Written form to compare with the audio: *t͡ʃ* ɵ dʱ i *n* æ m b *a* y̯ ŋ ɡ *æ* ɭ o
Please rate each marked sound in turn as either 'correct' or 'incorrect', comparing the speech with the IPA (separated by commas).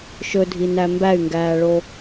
incorrect, correct, incorrect, incorrect